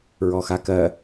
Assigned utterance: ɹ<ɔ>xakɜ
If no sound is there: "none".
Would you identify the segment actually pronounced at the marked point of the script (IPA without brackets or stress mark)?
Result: ɔ